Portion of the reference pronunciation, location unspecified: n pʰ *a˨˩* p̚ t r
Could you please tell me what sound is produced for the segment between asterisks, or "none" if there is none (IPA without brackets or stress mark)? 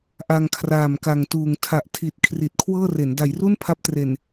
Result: a˦˥